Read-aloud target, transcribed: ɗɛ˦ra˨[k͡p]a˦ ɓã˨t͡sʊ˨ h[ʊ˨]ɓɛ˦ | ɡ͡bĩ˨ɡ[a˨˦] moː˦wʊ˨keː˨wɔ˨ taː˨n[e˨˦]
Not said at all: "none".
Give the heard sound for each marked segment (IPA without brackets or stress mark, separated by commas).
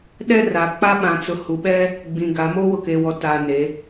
k͡p, u˨, a˨˦, e˨˦